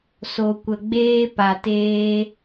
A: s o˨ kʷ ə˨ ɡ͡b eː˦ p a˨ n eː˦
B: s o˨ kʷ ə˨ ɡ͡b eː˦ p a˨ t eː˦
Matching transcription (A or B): B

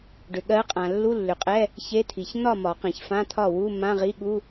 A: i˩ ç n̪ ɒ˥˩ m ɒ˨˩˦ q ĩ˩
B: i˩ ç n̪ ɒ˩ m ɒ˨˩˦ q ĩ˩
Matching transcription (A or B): A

